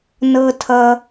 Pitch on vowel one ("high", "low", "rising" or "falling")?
low